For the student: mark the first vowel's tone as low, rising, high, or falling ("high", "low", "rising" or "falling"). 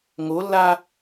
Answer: rising